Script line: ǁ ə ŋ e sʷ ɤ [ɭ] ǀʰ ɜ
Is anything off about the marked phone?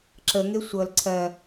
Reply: yes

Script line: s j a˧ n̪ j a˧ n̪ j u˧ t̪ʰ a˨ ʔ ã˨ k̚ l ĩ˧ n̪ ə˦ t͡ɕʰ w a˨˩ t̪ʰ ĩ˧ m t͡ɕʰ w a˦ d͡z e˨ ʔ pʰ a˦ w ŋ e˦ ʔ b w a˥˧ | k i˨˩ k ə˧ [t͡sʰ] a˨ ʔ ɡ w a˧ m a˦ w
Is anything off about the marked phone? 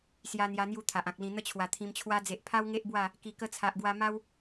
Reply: no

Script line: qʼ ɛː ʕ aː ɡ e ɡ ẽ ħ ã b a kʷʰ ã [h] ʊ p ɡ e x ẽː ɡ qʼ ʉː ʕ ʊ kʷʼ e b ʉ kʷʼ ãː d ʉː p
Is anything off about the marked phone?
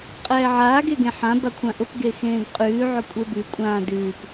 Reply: yes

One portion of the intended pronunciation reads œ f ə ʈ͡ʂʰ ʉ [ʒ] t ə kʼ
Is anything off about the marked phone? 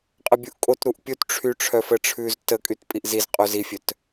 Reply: yes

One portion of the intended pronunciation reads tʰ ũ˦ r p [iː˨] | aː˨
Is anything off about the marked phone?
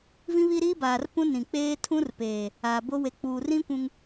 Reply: yes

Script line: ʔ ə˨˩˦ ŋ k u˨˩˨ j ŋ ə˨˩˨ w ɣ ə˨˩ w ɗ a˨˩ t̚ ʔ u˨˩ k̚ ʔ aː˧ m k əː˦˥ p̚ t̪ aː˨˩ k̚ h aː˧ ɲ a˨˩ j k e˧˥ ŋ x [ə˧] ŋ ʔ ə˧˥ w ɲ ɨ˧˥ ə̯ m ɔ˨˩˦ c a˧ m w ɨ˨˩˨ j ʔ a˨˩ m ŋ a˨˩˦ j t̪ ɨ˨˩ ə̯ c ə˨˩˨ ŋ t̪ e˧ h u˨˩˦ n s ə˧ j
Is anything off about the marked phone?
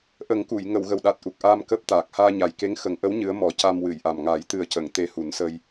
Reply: yes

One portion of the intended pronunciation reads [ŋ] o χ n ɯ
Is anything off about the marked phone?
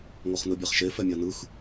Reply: no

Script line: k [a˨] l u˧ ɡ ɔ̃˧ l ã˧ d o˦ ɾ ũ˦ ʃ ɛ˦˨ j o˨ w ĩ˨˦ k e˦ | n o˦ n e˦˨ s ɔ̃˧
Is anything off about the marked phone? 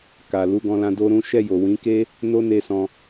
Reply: no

